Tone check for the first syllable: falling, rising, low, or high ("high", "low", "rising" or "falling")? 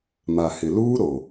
low